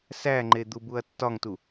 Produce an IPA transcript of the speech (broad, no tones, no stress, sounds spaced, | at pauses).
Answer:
s æ ŋ͡ǃ e d̪ u b u ɐ̯ tː ɒ ŋ t u